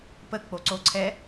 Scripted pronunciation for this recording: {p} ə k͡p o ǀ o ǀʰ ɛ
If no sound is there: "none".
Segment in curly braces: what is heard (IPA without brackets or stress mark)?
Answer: p